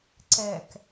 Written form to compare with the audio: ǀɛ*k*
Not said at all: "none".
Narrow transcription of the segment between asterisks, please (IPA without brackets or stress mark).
k